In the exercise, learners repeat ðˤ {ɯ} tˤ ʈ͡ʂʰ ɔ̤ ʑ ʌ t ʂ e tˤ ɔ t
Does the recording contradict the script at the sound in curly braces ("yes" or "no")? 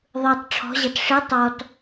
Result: no